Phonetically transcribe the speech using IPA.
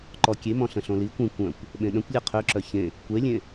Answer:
ǃ ɔ kʲ e m ɔ̃ ɬ ə̃ ɬ õ l i kʷ ĩ kʷ œ̃ kʷ | ɓ ẽ ɗ ə̃ kʷ lʲ e qʰ ø ǁ œ ç ẽ | kʷ e lʲ ẽ

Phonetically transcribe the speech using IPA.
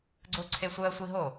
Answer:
ɡ͡ǀ ʊː ǀʰ e sʷ əː sʷ i ɦ o

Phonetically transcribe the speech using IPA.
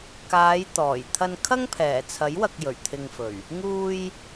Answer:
k aː˨˧ j t̪ ɔː˨˩ j t̪ʰ ɐ˧ n kʰ ɐ˥ ŋ pʰ ɛː˨˩ t͡sʰ ɐ˨˥ j w ɐ˨ k̚ j ɵ˨˩ ɥ t̪ʰ ɪ˨ ŋ f ɵ˨˩ ɥ | ŋ uː˧ j

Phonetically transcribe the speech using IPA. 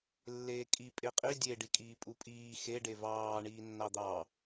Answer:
lː eː kʼ i pʼ e qʼ i dʲ e ɖ i kʼ iː pʼ u pʼ iː x e ɖ e v ɑː ɳ iː nː ɑ d̪ ɑ

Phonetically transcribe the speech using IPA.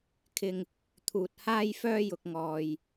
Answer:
kʰ ɪ˧ ŋ | t̪ʰ uː˧ t̚ h aː˥ j f œː˥ j ʊ˧ k̚ ŋ ɔː˧ j

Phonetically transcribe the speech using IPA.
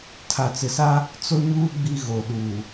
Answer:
tʰ a˨ t͡s ɪ˨ s a˦ | t͡s o˦ ɲ uː˦ ɡ͡b i˦ ɣ o˨ ɗ uː˨

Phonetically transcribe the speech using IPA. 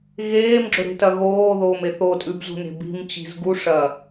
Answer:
ɣ eː m ɡ͡ǁ ɵ ɾ e̤ t ɐ ɣ oː ð oː m e θ o tʼ ʉ b z ṳ n e̤ b i̤ m t͡ɕ i̤ z ɡ u ʂ ɐ

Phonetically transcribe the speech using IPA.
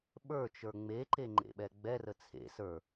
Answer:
ɓ ə˞ t͡ʃ ə˞ ŋ͡m e ǃ e ŋ͡ǃ ḛ ɓ ɛ ɡ͡b ɛ r ə t͡sʰ ḛ s ə˞

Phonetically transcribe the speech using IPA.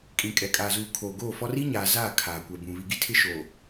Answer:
kʼ ĩ˨ kʼ ɛ˨ kʼ aː˨ z uː˨ kʰ oː˨ ɡ oː˦˨ f ɔ˦ r i˦ ɲ aː˨ z aː˦˨ kʰ aː˨ kʷ ɛ˨ b ũ˨ β i˨ ɡ i˦ tʰ ɪ˦ ʃ oː˨

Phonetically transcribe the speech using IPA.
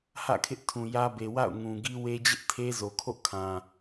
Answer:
h ä̰˦˨ kʰ ɪ˦ ʔ tʰ ũ˨ j ä˦ b e˨ w a̰˦˨ ʊ̯ ŋ ũ˨ ɡ i˦ w e˦ d͡ʑ ɪ˦ ʔ tʰ e˦ z o˨ kʰ o̰˦˨ kʰ ã˨

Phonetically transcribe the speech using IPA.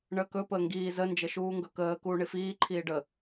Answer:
ɳ əː k ɵ p əː ŋ ɡ iː z ə n d͡ʒ ə ʃ uː ŋ ɡ ɵ k əː k uː ɳ i f iː ǃʰ iː ɖ ə

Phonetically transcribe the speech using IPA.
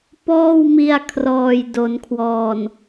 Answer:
p ɔː˥˩ w m i˧ a̯ kʰ r ɔː˨˩ j d o˩˦ n kʰ w ɔː˨˩ n

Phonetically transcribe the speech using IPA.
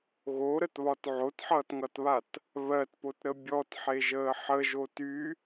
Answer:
ɣ o ɾ ə t β ɒ t ʕ o t ħ ʌː t ŋ ʌ t β a t | β ɜ t p o t ɾ ə bʲ ɔ t ħ e ʒ əː ħ ə ʒ o t y

